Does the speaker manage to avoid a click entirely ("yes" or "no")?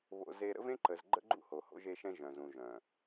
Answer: no